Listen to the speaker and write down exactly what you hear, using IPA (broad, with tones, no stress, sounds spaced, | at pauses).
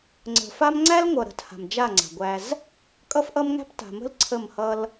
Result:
ŋ͡ǀ ə̤˨ f a˦ m ŋ͡ǀ æ˦ l ŋʷ ʌ˨ ɾ ə̤˨˦ t h a̤˨ m d͡ʒ a˦˨ ŋ͡ǀ a̤˨ ɡʷ æ˦ z | kʼ ʌ˦ f ʔ ʌ˦ m ŋ æ̤˦ p t a̤˨ m ə̤˦ l ǀʰ ə˦˨ m h ʌ˦ l